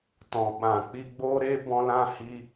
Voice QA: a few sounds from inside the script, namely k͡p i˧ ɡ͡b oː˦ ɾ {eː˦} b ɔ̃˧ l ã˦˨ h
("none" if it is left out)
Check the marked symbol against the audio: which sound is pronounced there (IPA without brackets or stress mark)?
eː˦